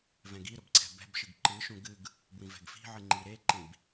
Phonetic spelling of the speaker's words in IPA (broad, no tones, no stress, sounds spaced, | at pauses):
v ɛ̃ ɡ i ɾ ʊ b ǀʰ ɛ̤ b ɛ̤ b ʃ ɨ ɡ ǃ ɨ ʃ ũ ɡ ɨ ɡ | b w ĩ v ɛ̤ ɡ f i̤ ʕ ɨ ŋ͡ǃ i ɾ e ǃ ĩ b